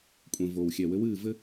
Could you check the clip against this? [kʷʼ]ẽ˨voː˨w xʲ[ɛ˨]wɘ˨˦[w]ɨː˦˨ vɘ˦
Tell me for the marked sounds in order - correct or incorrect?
correct, correct, correct

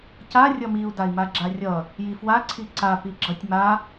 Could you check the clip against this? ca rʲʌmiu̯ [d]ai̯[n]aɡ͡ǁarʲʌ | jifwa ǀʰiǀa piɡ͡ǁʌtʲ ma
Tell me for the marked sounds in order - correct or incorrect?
correct, incorrect: m

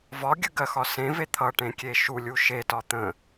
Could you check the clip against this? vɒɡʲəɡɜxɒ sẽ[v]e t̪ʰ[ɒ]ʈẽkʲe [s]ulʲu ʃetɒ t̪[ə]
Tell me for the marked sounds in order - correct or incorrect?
correct, incorrect: ʌ, incorrect: ʃ, incorrect: ə̃

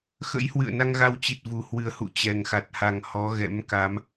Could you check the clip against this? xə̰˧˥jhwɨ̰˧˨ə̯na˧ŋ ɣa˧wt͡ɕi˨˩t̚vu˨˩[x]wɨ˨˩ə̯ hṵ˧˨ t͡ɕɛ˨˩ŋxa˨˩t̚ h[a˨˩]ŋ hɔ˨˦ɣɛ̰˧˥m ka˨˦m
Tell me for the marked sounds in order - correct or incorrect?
incorrect: h, correct

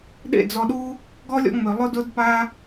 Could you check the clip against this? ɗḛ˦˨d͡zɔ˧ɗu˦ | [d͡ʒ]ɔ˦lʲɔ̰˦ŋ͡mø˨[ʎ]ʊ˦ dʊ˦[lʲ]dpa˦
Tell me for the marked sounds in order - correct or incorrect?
incorrect: ɡ, incorrect: lˠ, incorrect: none

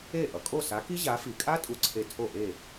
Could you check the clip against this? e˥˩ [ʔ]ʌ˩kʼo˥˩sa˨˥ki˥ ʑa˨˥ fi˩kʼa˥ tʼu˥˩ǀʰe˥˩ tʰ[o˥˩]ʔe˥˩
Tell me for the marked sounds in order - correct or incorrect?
correct, correct

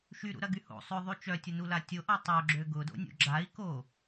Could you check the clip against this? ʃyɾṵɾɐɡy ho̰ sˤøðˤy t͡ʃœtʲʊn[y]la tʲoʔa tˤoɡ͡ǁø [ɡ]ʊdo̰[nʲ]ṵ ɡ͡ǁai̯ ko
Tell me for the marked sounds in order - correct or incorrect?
incorrect: u, correct, correct

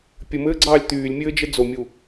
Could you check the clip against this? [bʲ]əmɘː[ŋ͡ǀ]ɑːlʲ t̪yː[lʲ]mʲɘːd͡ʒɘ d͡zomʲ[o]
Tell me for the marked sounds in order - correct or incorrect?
incorrect: pʲ, incorrect: ɡ͡ǀ, correct, incorrect: u

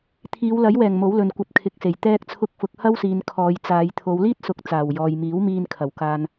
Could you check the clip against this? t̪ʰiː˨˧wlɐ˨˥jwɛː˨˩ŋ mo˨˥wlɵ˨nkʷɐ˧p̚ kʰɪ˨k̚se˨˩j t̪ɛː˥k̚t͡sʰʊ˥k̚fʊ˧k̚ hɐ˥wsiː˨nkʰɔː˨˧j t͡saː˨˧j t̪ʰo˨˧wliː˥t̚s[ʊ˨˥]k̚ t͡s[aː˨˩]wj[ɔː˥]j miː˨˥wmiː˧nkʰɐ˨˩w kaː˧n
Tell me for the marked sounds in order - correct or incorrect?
correct, correct, incorrect: ɔː˨

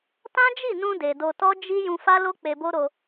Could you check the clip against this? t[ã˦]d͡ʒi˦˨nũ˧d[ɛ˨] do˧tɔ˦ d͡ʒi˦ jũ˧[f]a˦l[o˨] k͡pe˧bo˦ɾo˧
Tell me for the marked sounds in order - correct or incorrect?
correct, incorrect: e˨, correct, incorrect: o˦

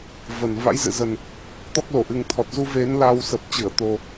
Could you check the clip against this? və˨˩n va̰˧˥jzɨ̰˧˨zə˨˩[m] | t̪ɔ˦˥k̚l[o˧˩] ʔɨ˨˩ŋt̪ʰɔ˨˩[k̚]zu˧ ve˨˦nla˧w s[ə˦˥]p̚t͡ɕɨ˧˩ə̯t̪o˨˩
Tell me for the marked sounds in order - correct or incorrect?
incorrect: n, correct, incorrect: t̚, incorrect: ə˨˩

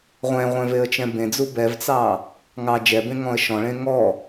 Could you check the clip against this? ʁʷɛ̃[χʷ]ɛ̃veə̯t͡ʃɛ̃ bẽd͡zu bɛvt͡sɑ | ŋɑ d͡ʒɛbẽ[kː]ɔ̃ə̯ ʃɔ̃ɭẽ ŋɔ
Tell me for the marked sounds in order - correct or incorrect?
incorrect: ʁʷ, incorrect: ŋ

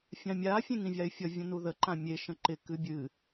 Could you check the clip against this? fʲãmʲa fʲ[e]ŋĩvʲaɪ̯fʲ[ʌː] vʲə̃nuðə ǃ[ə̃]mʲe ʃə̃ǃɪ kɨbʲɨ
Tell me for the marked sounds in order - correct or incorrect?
incorrect: ẽ, incorrect: ʌ, incorrect: ã

